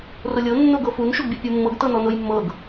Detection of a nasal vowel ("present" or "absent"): absent